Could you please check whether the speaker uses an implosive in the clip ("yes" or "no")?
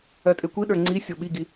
yes